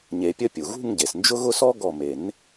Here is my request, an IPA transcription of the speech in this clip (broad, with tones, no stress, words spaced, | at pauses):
ɲe˨˩˦pʲə˥˧ pʲu˩ɣṳ˥˧ŋɟe˩snd͡ʒʊ˥ ɣʊ˥˧sɔ˥ɡɔ˧˩ me˨˩˦n